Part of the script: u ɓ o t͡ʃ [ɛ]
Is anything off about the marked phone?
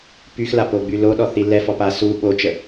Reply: yes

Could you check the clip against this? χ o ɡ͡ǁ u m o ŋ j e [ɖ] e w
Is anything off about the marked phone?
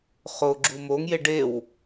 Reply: no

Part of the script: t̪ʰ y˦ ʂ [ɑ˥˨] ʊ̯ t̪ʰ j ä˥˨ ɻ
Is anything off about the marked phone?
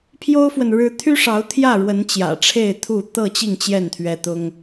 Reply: yes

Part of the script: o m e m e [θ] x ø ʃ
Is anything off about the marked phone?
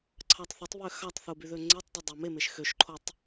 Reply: yes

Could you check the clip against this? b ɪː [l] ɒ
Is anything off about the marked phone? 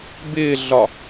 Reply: yes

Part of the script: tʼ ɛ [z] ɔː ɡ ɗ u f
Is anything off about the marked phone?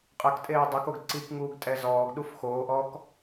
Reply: no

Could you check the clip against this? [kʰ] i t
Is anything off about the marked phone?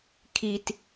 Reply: no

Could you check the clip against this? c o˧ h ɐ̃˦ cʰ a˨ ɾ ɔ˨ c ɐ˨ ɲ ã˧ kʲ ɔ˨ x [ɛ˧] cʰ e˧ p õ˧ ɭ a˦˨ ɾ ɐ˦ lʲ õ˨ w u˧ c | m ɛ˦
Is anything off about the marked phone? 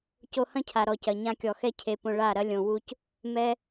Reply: yes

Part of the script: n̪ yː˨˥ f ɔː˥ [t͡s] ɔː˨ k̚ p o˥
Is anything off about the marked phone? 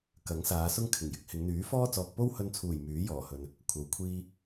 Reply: no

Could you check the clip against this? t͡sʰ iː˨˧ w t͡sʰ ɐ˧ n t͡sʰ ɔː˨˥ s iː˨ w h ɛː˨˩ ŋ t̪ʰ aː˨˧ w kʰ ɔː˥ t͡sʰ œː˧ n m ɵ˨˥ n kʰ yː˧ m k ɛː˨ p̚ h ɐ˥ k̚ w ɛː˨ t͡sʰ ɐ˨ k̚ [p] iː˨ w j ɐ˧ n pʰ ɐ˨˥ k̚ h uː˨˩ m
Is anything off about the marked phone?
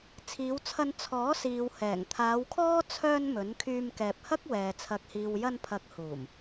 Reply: yes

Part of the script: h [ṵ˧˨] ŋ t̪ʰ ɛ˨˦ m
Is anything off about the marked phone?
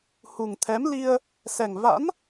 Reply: yes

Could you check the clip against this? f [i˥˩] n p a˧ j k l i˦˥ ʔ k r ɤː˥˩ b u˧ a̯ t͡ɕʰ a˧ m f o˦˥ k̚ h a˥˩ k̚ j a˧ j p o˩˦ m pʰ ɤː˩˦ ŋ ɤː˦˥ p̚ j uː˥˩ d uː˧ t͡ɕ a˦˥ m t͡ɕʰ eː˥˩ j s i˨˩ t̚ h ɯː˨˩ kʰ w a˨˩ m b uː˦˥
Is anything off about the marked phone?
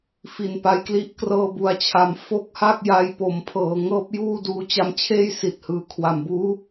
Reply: yes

